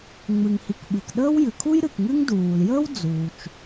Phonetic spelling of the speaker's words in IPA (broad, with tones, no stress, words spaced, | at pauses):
ŋ͡mɨ˩ŋhi˩kɓɨ˩kɗəː˥w jɨ˩ kʰu˥jɾɨ˩kŋɨ˥ŋ duː˩ljəː˥w d͡zuː˩t͡ʃ